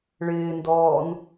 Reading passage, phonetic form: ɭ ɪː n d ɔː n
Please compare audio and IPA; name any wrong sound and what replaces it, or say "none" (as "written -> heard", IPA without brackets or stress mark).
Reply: none